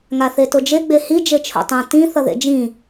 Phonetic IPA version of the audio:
ŋ a θ e t o d͡ʒ e ɡ͡b e h i d͡ʒ e t͡ʃʰ o̰ tˤ ã t ĩ θ ʌ ð ḛ d͡ʒ ĩ

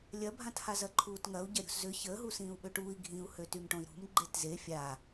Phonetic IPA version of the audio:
lʲ ɐ bʱ ã t h a z ɐ ǃʰ uː t ŋ ɐ u̯ ɟ ɐ ɾʲ ṳ s z ʏ ç əː ɦ u s ĩː u̯ ɓ ø ʈ uː i̯ ɡʱ ĩ u̯ h ø t y m ʈ õ i̯ ɾ ṳ m ɡ͡ǃ e t z e fʲ a

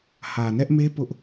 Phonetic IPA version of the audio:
h ä˨ n ɛ˦ ʔ m e˦ p ʊ˦ ʔ

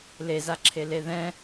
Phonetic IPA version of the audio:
l e z a ǁʰ e l e ð ɛ̃

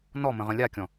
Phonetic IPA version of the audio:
n ɔ m ə̃ ʁ ə̃ lʲ a kʲ ɔ̃

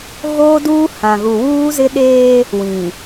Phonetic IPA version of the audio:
ɣ oː˦ d uː˦ h ã˨ ɣ u˨ w uː˦ z ɪ˦ ɗ eː˦ | w ĩ˨

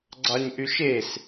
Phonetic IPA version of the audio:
ɡ͡ǀ ɑ ɲ ʔ y ʃ e s

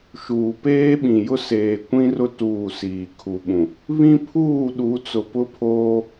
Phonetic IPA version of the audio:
ʃ uː˨ p eː˦ ɓ ĩ˨ j ʊ˦ s eː˨ kʷ ĩ˦ r ʊ˦ t uː˦˨ s iː˨ kʰ u˨ ɓ ũ˨ | β ĩ˦ pʰ uː˦˨ ɗ u˨˦ t͡s ʊ˨ p ʊ˦ pʰ oː˦

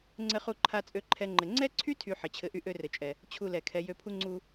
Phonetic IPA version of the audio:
ŋ͡ǀ ɘ˦ χ u˦ ǃʰ a˦ t͡sʼ ø˧ ǃʰ ɛ˧ ŋ͡ǃ ɘ˨ ŋ͡ǀ ɛ˦ ǀʰ y˦ tʰ y˨ ħ ɘ˨ t͡ɕʰ ɘ˧ ʔ y˦ ʔ ø˦ r ɘ˨ t͡ʃʼ ɛ˨ | t͡ɕʰ u˦ l ɛ˨ kʰ ɛ˧ j ø˧ pʰ u˦ ŋ͡ǀ u˦

